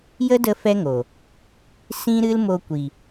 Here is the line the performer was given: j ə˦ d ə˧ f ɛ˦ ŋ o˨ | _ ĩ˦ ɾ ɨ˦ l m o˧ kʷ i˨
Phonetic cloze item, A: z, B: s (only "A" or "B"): B